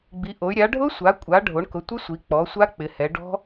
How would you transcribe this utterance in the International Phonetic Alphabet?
ɡ͡bi˩˧ʔo˩˧y̯ ɾʲa˩˧ ɖʱʊ˦˥sʷa˩˧kʷʼa˩˧ ɖʱo˩˧ɳkʊ˩˧tʷɪ˦˥ sʷi˩˧k͡pɔ˩˧sʷa˦˥ k͡pɪ˩˧hɛ˩˧ɖɔ̤˦˥

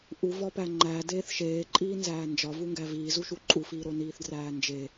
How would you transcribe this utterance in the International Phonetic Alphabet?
ʔuvɒpæ ŋ͡ǃæ deːθʃeːǃʼiːnzæː nd͡ʒɒvuŋɡæ viːzuʃu ǃʼufiːɾo niːθdræːnd͡ʒe

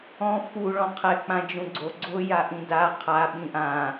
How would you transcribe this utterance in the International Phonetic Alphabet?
ɔ̃ fu ɭɔ̃qʰɛ k͡pãd͡ʒũɡ͡ǀo ɡ͡ǀʊ jaʔĩda qʰa ɓĩʔã

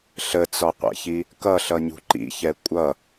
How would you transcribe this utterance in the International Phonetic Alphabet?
ɬət͡sɒqʷɛ̰çi | kʌɬʌɲṳ ǃḭçɛ kʷʼʌ

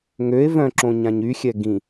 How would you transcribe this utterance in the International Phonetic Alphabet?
ŋøe̯ vœ̃ǁõɲãɲ yxʲɛ ɡĩ

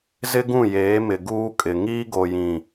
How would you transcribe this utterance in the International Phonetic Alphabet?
zɪ˦ɡũ˦˨jeː˨˦mɪ˨ ɡuː˦kʼɪ˨ ŋiː˦ɡo˨jĩ˨

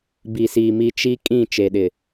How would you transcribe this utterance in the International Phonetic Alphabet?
bi˨si˨mi˦ t͡ʃi˦kʼĩ˦˨ t͡ʃe˨ɗɪ˨

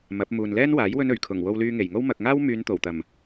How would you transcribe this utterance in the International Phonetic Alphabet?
mɐ˨˥p̚ muː˨nlɛː˥nwaː˨˥j wɵ˥nɵ˨˩ɥ kʰʊ˨˩ŋ wo˧wlyː˧ŋe˨˩jŋo˥w mɐ˨k̚ŋaː˥wmyː˨˧n t̪o˨˩wt̪ɐ˨˩m

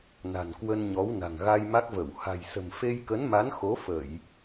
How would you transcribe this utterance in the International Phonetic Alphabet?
na̤˨˩nkwə˧nɲɔ˨˦w na̤˨˩ŋ ɣa˧jma˦˥k̚və˧˩w ha̤˨˩jsə̤˨˩m fe˧jkə˨˦nma˨˦n xo˨˦fə˧˩˨j

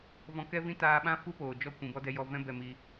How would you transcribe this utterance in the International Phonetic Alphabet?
vɔ̃˧kɛ˦vĩ˦ taː˧ɓã˦ fu˦poː˨ d͡ʒɔ˦˨kʷĩ˨ bɔ˦dɛ˧jɔ˧ vɛ̃˦ bɛ˧mi˧

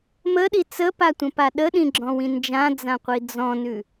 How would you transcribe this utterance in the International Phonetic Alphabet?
məɗi t͡səpatʷə̃pa ɗəɗĩɡ͡ǁɔ̃wĩ nd͡ʒãd͡zãqʷi d͡zɔ̃nʉ

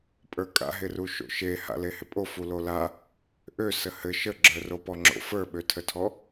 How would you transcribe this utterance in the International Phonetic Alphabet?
pʼə˞kʼa̰ɦɪru ʃo̰ʃe ha̰lehɪpʼo fulola | ʔøsə hɘ ʃəɡ͡ǁə˞ ropɔŋ͡ǁo̰ fə˞ɓøtʰətʰɔ

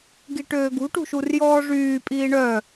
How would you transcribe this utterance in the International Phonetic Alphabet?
ɡiʈøːɡṳʈṳ ʃurjɔːʐyːpʼiː ɳœ

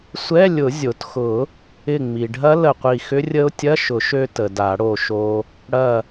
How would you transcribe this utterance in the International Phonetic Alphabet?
sʷɛ˧˥˧lʲʊ˨˩˦ zʲo˩txʊ˨˩˦ | ɪ˧˩ŋ͡mi˩ɖʱɐ˦˥ lə˧˩qʷi˧˩xʏ˦˥rʲə˦˥ʊ̯ tʲɐ˧˥˧ʃʊ˨˩˦ʃø˧ tə˩ da˨˩˦ɽo˧˩ʃo˧ | ɽɐ˧˩

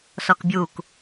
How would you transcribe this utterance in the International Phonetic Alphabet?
sɔkbʲuk

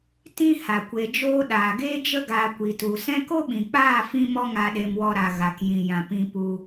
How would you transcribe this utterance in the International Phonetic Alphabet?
tĩ˦ ha˨kʷe˧d͡ʒoː˦ ɗaː˨ɡeː˦d͡ʒə˦ ɡaː˧kʷi˨tu˨ sɛ̃˦ ko˦ɓĩ˨k͡paː˦˨ fĩ˦ mɔ˦ŋa˧ ɗe˧mwɔ˧ɾa˨ ɣa˨kjĩ˨ jã˨pĩ˧ pu˧

